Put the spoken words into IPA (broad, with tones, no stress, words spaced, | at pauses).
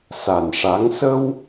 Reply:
sa˨˩nʂa˧˥ŋ sə˧w